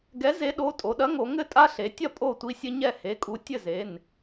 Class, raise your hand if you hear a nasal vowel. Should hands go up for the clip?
no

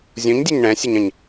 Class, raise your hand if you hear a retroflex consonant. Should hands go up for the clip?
yes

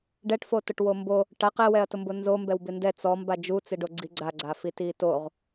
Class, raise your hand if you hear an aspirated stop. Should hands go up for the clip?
no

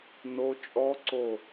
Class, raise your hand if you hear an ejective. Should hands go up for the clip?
yes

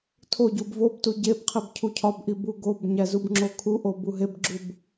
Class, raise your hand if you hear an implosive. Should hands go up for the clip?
no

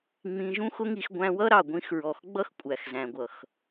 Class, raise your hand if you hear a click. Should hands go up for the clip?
no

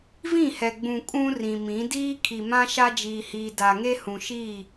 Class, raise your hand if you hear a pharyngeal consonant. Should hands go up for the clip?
no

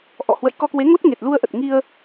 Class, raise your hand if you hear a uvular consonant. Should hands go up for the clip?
no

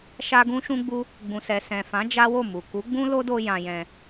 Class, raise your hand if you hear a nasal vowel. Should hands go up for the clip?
yes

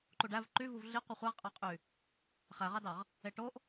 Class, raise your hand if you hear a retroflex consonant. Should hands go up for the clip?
yes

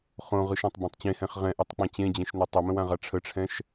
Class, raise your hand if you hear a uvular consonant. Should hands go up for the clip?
yes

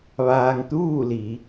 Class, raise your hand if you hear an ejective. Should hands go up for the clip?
no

